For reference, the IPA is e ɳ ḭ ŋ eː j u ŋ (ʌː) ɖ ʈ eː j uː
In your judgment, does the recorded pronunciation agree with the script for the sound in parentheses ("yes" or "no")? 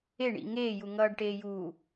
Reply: yes